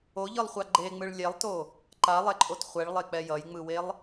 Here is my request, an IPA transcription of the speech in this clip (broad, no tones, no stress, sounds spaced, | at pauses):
o ʎ ɯ lˠ χʷ a ɡ͡ǃ e ŋ͡m ɯ ɭ lʲ ɛ lˠ t o | ǃ a lˠ ɛ ǃʼ o t χʷ ɛ ɭ lˠ e k͡p ɛ j ʌ j ŋ͡m ɯ w e lˠ